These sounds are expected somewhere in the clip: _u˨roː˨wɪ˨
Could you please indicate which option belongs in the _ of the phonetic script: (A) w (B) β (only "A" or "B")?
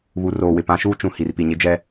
B